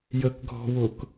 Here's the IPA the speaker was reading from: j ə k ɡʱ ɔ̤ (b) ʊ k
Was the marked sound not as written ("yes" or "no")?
yes